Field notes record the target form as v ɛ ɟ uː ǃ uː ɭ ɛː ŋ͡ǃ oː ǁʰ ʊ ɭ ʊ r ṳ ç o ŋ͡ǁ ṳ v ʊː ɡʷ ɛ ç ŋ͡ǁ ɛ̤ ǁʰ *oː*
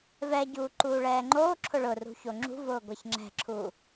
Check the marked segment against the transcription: incorrect: uː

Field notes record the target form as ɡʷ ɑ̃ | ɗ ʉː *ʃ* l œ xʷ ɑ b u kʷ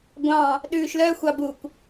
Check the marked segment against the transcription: correct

